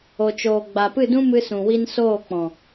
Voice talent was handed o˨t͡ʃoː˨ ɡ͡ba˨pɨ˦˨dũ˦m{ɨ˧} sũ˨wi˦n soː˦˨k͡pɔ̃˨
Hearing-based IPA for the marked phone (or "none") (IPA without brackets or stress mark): ɨ˧